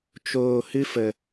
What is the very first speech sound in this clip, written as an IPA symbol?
t͡ʃ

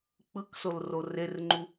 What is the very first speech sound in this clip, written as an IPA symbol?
k͡p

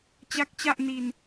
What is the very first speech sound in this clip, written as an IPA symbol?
t͡ɕ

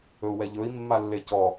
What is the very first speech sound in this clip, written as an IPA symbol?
ɵ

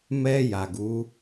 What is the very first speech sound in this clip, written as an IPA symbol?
m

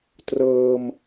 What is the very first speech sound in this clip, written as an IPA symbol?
t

